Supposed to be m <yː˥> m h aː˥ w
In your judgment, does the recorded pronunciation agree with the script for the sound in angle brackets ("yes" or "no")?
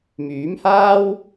no